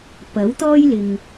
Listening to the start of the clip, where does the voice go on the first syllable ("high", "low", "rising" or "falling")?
rising